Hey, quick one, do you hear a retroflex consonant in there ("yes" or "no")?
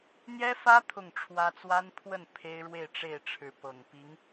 yes